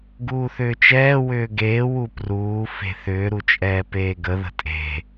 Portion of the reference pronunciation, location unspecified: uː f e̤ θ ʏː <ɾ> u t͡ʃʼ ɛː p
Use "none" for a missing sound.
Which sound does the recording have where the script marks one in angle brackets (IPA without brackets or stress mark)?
ɾ